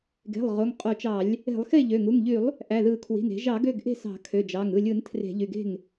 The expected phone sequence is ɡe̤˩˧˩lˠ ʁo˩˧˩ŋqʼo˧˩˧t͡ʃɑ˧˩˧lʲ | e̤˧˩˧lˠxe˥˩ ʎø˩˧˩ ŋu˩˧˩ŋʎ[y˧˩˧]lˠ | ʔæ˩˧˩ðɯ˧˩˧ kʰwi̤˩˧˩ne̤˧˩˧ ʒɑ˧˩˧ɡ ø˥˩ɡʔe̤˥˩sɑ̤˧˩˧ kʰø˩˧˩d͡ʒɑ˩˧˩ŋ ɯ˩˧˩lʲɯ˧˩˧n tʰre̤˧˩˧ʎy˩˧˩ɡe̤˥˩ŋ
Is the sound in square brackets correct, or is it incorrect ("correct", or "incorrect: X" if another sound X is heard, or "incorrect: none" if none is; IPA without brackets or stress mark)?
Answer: correct